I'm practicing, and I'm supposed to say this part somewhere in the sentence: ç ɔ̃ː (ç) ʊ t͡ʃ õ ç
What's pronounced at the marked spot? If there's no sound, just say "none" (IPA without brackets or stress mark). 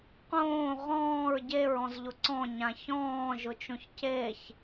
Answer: ʒ